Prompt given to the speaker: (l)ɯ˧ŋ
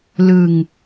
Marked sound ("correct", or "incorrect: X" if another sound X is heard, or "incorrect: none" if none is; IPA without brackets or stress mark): correct